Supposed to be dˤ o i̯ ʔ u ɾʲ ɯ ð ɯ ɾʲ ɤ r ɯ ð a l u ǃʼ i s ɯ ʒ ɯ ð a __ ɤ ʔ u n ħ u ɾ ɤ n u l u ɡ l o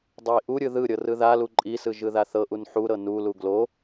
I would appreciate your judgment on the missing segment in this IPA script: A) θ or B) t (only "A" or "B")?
A